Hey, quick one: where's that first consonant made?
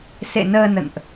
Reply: tongue tip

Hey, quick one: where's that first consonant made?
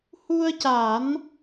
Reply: throat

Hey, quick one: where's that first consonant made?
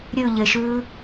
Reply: tongue tip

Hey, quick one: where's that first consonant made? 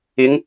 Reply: velum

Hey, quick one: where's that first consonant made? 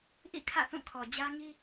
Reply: throat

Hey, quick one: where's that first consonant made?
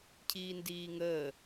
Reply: palate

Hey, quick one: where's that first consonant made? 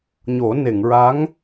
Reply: palate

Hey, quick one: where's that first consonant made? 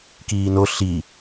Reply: velum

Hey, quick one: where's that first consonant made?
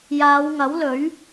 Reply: palate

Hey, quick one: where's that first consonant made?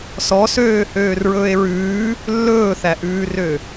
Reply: tongue tip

